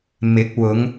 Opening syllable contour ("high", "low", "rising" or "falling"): rising